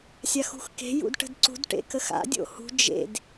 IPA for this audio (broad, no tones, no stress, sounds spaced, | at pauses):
sʲ a x ṳ x k e̤ j ṵ d ʈ ə̤ d ǀ ṳ d ʈ ḛ k ə x a̰ dʲ o̰ h ṳ d͡ʒ ḛ d